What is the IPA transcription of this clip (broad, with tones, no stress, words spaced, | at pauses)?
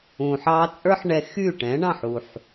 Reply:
ũ˨ħ ɑ˧t͡sʼə˞˦ħ ɳɛ˧ xy˦˨ʈɛ̃˨˦ɳɑ̃˦˨ħ u˨ħ